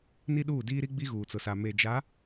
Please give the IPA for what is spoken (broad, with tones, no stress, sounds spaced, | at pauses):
n i˦ ɗ uː˦˨ d iː˦ ɾ i˦ ɡ͡b i˦ ɣ uː˨ t͡s ʊ˨ s a˨ m e˨ d͡ʒ a˨˦